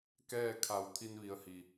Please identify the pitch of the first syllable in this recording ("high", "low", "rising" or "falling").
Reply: falling